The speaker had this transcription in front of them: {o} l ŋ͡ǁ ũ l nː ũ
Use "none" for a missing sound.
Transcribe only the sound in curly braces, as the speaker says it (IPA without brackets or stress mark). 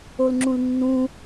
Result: o